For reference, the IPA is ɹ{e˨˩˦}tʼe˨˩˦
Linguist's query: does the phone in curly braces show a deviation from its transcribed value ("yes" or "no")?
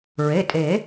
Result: yes